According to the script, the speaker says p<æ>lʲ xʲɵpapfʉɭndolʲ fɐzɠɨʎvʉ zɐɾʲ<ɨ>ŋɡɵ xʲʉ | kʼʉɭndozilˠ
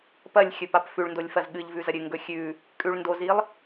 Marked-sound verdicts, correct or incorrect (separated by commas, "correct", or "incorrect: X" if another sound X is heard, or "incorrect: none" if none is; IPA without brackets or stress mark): incorrect: ɐ, correct